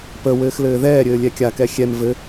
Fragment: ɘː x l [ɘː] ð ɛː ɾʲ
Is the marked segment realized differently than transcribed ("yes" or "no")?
no